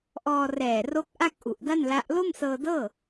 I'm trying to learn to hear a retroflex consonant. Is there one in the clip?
no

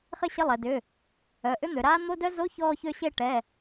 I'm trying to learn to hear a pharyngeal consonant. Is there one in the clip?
no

